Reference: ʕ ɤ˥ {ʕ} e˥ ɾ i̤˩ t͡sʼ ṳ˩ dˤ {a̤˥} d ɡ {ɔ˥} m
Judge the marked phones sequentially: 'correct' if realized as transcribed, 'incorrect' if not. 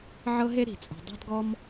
incorrect: ɦ, correct, correct

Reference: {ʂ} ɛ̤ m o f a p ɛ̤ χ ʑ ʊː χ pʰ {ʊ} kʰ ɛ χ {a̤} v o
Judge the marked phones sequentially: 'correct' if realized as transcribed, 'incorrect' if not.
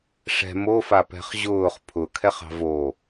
correct, correct, incorrect: ɑ̤

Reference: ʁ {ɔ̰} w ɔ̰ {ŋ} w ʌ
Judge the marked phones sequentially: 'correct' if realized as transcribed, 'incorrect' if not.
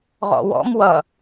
correct, incorrect: m

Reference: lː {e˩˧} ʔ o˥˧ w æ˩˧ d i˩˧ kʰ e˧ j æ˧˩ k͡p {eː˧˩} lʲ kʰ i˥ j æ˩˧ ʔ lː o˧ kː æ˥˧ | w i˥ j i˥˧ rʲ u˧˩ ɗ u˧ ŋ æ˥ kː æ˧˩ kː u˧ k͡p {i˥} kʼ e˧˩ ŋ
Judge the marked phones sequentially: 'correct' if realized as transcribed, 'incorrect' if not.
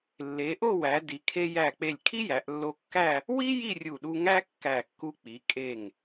correct, incorrect: e˧˩, incorrect: i˩˧

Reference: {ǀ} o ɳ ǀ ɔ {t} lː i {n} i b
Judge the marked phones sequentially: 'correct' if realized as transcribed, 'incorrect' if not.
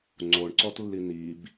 incorrect: ŋ͡ǀ, correct, correct

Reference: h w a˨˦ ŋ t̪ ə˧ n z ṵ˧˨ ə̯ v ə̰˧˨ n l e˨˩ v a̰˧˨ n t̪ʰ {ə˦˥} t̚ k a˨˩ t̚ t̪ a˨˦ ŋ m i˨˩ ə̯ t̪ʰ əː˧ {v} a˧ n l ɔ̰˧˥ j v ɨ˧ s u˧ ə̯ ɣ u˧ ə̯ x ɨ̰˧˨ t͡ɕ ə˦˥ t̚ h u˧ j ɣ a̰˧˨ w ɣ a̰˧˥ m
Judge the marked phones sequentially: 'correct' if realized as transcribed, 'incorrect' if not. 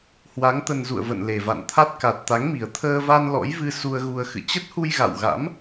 incorrect: a˦˥, correct

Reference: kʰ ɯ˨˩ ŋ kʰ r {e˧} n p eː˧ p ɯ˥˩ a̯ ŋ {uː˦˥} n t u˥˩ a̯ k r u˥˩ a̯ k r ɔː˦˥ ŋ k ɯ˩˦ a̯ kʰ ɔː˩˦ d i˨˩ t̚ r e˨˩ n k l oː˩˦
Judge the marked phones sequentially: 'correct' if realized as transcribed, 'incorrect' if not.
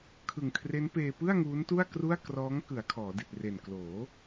incorrect: e˦˥, correct

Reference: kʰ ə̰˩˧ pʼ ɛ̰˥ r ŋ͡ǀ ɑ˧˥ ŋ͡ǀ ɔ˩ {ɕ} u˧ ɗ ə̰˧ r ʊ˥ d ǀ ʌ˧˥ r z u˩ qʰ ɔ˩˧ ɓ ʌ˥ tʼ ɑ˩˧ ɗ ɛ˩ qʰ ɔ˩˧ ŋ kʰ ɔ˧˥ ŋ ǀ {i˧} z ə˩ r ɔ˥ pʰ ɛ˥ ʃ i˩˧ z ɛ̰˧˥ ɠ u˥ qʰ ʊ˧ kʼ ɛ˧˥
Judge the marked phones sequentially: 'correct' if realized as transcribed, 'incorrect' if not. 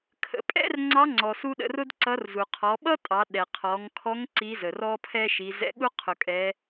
incorrect: s, incorrect: i˧˥

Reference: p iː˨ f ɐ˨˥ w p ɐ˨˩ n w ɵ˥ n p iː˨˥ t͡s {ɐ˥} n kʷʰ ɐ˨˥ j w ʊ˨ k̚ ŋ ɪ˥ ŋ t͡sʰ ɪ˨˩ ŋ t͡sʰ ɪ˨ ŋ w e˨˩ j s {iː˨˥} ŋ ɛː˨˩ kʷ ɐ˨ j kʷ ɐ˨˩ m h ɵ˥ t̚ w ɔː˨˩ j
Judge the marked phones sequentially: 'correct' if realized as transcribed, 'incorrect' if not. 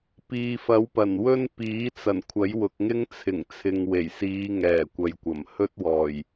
incorrect: ɐ˨˩, incorrect: iː˨˧

